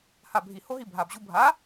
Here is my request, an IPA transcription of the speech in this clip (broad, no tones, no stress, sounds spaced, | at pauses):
h a bʱ i h o ɦ i bʱ a b ʑ u bʱ a